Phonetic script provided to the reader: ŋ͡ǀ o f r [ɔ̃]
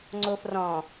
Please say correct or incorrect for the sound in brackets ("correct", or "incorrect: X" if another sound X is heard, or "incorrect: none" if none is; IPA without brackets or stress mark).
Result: correct